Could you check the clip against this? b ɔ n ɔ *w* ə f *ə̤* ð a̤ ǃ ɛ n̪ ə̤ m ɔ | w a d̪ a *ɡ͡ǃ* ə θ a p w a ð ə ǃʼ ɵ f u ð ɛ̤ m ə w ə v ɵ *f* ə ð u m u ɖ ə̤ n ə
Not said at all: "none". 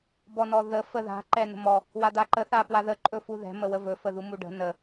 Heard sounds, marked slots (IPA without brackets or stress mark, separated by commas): ð, ə, ǃ, f